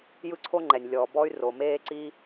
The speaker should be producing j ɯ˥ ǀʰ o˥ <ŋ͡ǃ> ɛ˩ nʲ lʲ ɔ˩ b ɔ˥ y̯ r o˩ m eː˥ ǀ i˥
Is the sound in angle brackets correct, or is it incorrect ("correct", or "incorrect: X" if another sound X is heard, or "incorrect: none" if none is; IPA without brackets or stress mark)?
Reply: correct